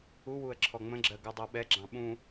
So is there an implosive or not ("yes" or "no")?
yes